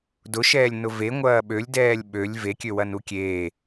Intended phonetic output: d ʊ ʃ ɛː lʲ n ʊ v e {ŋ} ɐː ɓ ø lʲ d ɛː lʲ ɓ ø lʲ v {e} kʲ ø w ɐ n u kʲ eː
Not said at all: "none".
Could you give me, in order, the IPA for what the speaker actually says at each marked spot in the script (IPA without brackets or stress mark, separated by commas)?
ŋʷ, e